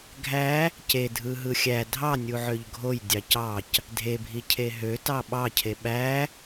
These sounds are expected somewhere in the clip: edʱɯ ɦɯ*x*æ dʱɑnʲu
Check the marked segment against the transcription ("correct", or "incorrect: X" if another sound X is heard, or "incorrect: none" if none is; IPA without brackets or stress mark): incorrect: xʲ